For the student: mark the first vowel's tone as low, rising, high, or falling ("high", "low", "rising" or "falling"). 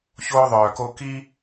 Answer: high